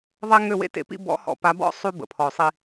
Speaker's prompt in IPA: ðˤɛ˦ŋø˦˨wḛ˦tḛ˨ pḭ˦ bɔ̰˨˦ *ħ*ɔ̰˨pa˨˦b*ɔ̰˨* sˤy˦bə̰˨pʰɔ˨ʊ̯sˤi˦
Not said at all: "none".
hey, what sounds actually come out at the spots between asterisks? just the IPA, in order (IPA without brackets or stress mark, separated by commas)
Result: h, ɔ̰˦˨